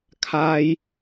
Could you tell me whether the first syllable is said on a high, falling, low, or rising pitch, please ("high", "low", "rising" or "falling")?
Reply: high